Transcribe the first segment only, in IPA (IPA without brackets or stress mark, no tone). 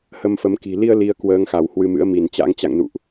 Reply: h